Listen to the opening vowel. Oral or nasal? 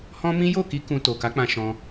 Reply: nasal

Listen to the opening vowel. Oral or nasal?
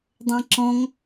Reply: nasal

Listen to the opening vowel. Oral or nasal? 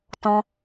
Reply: nasal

